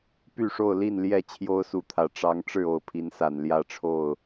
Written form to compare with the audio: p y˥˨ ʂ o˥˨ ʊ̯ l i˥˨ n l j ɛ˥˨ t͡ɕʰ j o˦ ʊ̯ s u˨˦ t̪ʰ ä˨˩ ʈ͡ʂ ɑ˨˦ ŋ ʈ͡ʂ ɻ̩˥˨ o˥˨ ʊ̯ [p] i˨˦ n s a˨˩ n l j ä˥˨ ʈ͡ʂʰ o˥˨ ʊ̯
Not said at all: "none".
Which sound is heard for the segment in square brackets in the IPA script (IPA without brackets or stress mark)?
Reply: pʰ